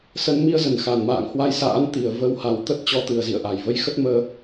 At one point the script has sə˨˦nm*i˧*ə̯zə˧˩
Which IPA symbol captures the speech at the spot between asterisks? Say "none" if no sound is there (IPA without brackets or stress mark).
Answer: i˧